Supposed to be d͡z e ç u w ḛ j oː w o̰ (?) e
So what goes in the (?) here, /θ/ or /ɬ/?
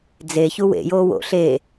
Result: ɬ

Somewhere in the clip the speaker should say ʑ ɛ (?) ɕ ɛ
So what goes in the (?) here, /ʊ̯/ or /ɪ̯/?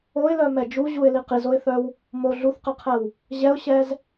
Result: ʊ̯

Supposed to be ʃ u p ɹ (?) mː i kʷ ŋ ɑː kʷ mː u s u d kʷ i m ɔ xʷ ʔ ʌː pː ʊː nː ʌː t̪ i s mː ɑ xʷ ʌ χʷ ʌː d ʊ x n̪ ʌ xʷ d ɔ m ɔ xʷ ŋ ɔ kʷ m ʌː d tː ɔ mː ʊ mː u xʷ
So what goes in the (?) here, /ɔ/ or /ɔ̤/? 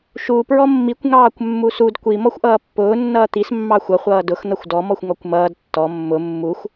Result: ɔ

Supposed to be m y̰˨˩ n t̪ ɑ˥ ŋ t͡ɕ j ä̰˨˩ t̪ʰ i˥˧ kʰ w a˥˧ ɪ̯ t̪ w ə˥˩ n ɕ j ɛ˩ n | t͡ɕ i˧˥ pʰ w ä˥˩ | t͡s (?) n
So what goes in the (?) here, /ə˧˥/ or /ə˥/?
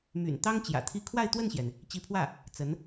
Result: ə˧˥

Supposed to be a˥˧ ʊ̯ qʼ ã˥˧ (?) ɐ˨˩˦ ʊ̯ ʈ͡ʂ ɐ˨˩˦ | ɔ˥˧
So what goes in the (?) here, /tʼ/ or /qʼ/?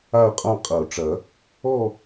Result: qʼ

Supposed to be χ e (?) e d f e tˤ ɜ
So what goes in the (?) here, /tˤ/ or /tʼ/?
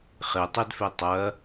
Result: tˤ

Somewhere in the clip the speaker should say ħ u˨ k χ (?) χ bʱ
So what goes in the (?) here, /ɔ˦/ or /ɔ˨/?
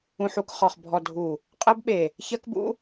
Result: ɔ˨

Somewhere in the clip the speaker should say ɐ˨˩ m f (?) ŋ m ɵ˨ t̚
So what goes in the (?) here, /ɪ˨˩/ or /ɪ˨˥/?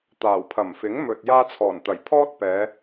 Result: ɪ˨˥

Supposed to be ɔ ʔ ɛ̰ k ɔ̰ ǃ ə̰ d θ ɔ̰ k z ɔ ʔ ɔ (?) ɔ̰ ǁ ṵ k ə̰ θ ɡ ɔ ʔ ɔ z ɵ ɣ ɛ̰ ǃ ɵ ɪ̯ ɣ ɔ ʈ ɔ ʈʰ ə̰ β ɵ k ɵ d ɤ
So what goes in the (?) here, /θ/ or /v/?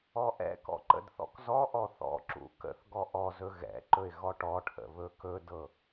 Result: θ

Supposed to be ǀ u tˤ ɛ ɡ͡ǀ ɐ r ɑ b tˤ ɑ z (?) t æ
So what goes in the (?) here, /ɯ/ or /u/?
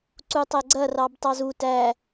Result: u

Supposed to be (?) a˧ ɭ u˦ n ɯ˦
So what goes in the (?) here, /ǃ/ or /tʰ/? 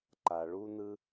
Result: ǃ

